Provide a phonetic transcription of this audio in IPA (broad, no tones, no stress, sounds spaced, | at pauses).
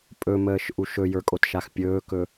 pʼ ɵ m əː ʃ ʔ u ʃ ɵ j ə˞ kʼ o t ʃ a x pʲ ɵː k ɵ